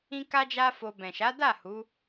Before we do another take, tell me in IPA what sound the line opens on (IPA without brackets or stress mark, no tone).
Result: ĩ